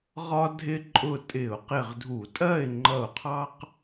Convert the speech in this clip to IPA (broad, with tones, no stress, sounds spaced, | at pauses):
ʁ ɒ˦ dʱ ɪ˦ ǃʼ ʊ˧˩ tʼ ɪ˧˩˧ ʊ̯ q ɪ˧˩ ʁ dʱ u˧˩˧ tʼ ɜ˥˨ ɪ̯ ŋ͡ǃ ʌ˧˩ ʊ̯ qʰ ɑ˦ q